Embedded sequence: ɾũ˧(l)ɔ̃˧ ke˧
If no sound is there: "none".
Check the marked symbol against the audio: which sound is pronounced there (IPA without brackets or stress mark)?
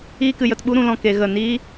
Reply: l